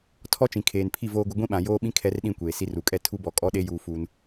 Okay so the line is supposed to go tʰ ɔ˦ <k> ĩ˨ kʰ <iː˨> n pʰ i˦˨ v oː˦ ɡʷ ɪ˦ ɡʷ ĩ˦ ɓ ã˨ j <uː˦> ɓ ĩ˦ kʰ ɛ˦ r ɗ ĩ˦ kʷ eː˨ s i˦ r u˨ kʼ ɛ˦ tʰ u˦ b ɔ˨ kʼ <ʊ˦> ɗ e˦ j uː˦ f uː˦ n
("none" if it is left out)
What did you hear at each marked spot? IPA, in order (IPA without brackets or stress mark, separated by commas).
t͡ʃ, eː˨, oː˦, ɔ˦